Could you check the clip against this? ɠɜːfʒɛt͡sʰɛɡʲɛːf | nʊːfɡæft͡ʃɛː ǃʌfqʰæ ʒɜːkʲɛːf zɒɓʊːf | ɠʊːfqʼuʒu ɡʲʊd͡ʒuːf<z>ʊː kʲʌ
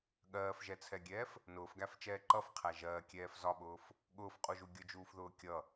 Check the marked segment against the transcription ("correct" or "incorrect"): incorrect